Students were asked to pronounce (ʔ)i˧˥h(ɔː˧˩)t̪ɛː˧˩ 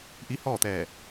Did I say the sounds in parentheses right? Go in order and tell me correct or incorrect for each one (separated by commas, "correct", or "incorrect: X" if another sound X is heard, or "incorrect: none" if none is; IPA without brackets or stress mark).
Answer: correct, incorrect: ɔː˥˨